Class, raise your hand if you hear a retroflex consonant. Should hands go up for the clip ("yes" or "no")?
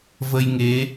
no